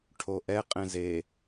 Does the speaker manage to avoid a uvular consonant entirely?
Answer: no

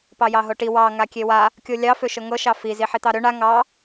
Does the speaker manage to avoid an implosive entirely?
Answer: yes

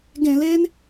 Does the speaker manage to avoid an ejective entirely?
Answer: yes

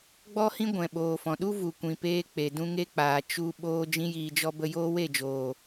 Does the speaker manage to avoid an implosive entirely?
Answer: no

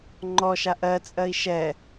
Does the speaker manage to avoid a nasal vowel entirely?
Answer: yes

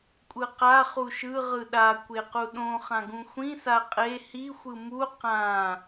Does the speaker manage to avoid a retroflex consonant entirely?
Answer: yes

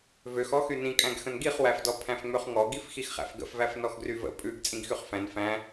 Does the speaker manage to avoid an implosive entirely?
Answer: yes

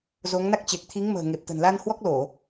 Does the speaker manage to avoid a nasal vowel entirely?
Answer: yes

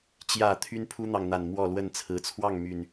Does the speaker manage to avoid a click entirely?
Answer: yes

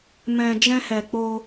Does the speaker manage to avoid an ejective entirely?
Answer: yes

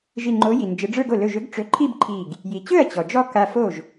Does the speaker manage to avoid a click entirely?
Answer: no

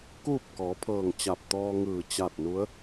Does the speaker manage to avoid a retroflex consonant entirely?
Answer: yes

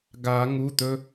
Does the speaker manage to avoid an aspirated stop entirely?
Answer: yes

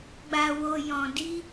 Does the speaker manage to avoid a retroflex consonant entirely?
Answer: yes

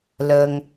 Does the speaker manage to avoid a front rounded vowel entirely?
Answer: yes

